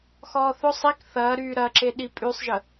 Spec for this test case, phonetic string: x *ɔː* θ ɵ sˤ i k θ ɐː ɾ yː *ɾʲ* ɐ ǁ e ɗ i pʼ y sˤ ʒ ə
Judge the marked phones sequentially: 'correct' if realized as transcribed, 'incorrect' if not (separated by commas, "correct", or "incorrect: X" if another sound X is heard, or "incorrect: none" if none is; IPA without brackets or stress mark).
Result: correct, incorrect: ɾ